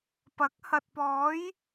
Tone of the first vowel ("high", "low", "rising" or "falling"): rising